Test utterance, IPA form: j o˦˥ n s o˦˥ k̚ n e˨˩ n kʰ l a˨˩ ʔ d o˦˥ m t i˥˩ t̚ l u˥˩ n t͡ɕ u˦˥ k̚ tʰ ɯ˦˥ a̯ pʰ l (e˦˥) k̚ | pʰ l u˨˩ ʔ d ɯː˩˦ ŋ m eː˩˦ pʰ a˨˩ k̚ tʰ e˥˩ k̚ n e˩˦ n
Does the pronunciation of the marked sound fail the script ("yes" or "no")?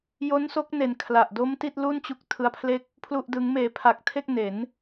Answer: yes